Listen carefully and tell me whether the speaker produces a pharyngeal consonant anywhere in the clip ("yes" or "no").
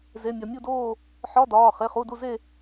yes